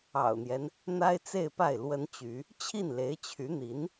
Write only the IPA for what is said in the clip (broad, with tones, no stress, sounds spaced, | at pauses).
ɑ̰˨˩ ʊ̯ n̪ j ɛ˦ n | n̪ a˥ ɪ̯ t͡s e˥˧ ɪ̯ p a˥˩ ɪ̯ l w ə˥ n t͡ɕ y˧˥ | t͡ɕʰ i˥˩ n l e˧˥ ɪ̯ t͡ɕʰ y˧˥ n̪ i˧˥ n